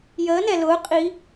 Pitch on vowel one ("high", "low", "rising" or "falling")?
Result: rising